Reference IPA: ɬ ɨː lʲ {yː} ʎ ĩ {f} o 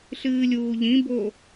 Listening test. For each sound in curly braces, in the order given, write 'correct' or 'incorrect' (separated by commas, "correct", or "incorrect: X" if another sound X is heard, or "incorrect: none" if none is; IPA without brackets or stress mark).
incorrect: uː, incorrect: b